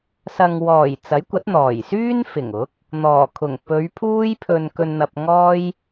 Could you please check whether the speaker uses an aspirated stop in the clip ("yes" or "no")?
yes